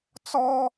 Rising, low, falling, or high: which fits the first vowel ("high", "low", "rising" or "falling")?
high